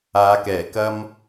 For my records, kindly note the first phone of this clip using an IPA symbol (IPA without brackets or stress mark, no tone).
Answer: aː